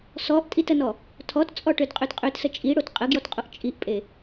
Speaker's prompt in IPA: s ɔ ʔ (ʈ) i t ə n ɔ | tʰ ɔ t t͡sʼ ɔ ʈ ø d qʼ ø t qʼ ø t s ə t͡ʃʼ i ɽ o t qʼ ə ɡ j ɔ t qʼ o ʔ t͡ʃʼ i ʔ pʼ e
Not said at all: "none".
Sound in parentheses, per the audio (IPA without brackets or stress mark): tʼ